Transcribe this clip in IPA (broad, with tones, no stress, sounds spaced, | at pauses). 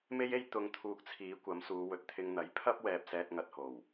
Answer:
m e˥ j e˥ j t̪ ʊ˧ ŋ t̪ʰ uː˧ k̚ t͡sʰ iː˨˧ kʷ ɐ˨˥ m s uː˨˧ w ɵ˨ t̚ t̪ʰ ɪ˧ ŋ n̪ ɐ˨˥ j pʰ ɐ˥ p̚ w ɛː˨ p̚ s ɛː˧ t̚ ŋ ɐ˨ t̚ h o˨˩ w